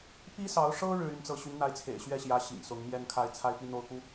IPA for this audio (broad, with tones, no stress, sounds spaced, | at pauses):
p i˥ s ɑ˧˥ ʊ̯ ʂ ɤ˥ ɻ ɻ̩˥˧ y˥˧ n t͡s ɤ˥˩ ɕ y˧˥ n n̪ a˧˥ ɪ̯ t͡sʰ ḛ˨˩ ɪ̯ ɕ ɥ ɛ˥˩ ɕ j ä˧˥ ɕ ḭ˨˩ ŋ s ʊ˧˥ ŋ m j ɛ˥ n kʰ a˥˧ ɪ̯ t͡sʰ a˥˧ ɪ̯ p i˥˧ n̪ o˥˩ ʊ̯ k u˧˥